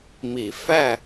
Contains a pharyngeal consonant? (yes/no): no